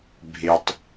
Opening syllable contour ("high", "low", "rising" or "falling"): low